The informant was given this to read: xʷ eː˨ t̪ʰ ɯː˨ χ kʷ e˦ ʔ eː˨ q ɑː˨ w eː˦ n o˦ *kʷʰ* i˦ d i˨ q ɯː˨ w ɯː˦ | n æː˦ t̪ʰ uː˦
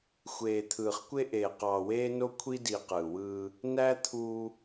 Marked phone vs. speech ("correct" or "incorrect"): correct